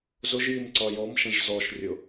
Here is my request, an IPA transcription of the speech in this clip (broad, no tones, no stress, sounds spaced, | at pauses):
z ʊ ʒ j i m ǀ ɒ j ɔ m ʃ ə̃ ʒ z ɔ ʃ rʲ ʊ